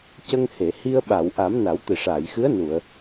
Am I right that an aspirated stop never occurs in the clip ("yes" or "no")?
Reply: yes